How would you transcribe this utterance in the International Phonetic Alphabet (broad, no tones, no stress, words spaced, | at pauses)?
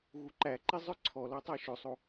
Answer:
ɣuǃæǃi zˤœǀʰɔlɔ tˤæʃɵsˤo